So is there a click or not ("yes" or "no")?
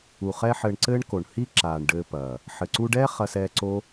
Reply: yes